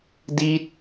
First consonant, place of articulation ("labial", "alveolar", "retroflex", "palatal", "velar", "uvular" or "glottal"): alveolar